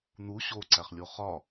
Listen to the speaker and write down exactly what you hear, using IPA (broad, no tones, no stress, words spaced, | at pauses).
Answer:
n̪u ɕoǀæχlʲo χɒ